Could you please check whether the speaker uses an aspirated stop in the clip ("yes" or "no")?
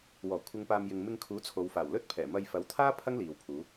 yes